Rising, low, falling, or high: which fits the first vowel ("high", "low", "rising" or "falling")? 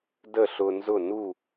falling